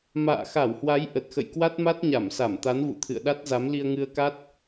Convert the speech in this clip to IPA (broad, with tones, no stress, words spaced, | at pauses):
ma̰ː˧˨xa˧˩whwa˨˦j ʔə˨˩t̚xə̰˧˨jkwa˦˥t̚ma˦˥t̚ ɲa˧˩msa˧˩m t̪a˨˦nvṵ˧˨t̪ʰɨ̰˧˨ə̯ɗa˦˥t̚ za˨˦mli˧ə̯ŋɨ˧ə̯ka˦˥t̚